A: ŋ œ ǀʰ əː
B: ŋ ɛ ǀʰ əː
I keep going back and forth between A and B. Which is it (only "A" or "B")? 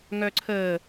A